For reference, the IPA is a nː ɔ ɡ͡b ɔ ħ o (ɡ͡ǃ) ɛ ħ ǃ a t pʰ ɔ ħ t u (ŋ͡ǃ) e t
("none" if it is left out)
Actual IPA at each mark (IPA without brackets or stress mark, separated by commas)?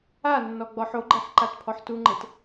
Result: ɡ͡ǃ, ŋ͡ǃ